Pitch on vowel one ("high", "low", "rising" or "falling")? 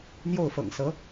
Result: falling